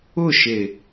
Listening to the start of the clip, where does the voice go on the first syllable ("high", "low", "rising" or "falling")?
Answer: falling